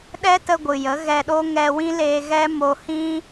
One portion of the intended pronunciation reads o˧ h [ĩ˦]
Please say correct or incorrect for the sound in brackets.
correct